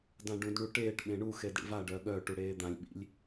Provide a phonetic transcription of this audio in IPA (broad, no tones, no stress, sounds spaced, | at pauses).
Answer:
d ã ɖ ũ d ɳ u ʈ eː ʈ ɓ ẽ ɳ u x e d ɽ ḭ v a ɖ œ ɠ œ ʈ u ɽ eː d̪ ã lʲ ɓ ḭ lʲ